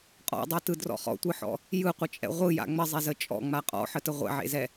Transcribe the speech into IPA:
qʼ ɔ̰ dˤ ɛ t ɯ d r ɔ̰ χ ɔ̰ tʷ ɯ ħ ɔ̰ | j ɯ qʷ ə t͡ʃʼ ɛ̰ ʁʷ ɯ j a̰ ŋ͡m ə zˤ e z ə t͡ʃʼ ɔ̰ ŋ͡m a qʼ ɔ̰ ħ ə t ə ʁʷ ɛ̰ ʕ ḛ z ɛ

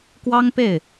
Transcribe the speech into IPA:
k w ɑ˥ ŋ p e˥˩ ɪ̯

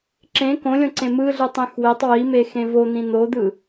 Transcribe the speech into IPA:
ǁ ẽ k õ lʲ õ ǀ ẽ m ɯ ɮ ɯ tˤ ẽ x w e tˤ w i m e x ẽ v o n̪ ĩ n̪ o d̪ ɯ

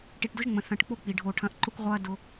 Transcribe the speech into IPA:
ʈ i˨ ʈ d ʊ˦ ʒ ŋ͡m ə̃˨ θ ɐ̃˨ ʈ k͡p o˦ k͡p i˨ ɖʱ o˦˨ ʈʰ ɐ̃˦ ʔ ǃ ʊ˦ kʷ ʁʷ ɐː˦ d ʊ˦

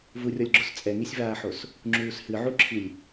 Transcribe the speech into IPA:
v u rʲ ɔ lʲ ɡ͡ǁ o s t͡sʼ ɛ ŋ i sʲ v aː ħ o s | ŋ͡ǁ uː s h ɨ ʕ u ǁʰ i lʲ

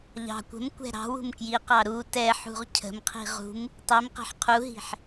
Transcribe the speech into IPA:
ʎ ɑ̤ kʷ ə̤ m kʷ ɛ̤ ɾ ɑ̤ w ṳ m k j i q ɑ ɾ u t ɛ ħ ṳ ʁ cʰ ə̤ m qʰ i̤ ʁ ṳ m | tˤ i m q ɛ̤ ħ qʰ u ɦ i̤ ħ

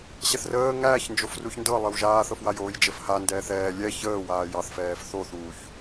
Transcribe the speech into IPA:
ɕ ɛ θ r əː ŋ æː ç n d͡ʒ o f r u ç n d ɤ lˠ ə w ʒ aː θ ɤ f w a j oː j d͡ʒ ə f h a n d ɛː θ ɛː lʲ ɛ ç əː w aː j ɑ θ f ɛː f θ o θ uː ç

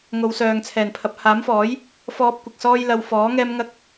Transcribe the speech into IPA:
ŋ o˨˧ w s œː˨ ŋ t͡sʰ ɛː˨˩ n pʰ ɐ˨˥ p̚ h aː˨˥ m f ɔː˨˥ j | f ɔː˥ p̚ kʷ ɪ˨ k̚ s ɔː˥ j l ɐ˧ w f ɔː˨˥ ŋ ɛː˥ m ŋ ɐ˥ k̚

